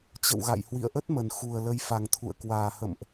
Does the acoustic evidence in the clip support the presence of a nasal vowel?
no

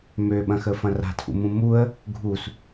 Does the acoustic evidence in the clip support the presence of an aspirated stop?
yes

